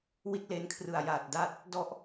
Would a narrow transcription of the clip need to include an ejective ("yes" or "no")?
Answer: no